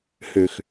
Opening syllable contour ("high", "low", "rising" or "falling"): low